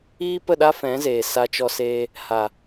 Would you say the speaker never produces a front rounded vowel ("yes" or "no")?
yes